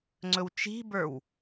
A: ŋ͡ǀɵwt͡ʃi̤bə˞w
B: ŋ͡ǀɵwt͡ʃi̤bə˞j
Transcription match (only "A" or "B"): A